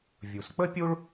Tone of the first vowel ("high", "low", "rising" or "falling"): low